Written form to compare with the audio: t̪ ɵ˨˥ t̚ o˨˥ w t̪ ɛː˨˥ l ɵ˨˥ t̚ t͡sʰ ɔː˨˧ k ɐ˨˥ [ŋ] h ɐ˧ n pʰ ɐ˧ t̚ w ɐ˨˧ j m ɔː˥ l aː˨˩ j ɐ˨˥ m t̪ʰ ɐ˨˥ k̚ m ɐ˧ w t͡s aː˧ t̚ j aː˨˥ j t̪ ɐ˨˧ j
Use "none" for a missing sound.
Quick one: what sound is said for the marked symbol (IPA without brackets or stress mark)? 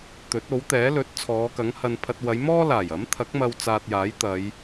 ŋ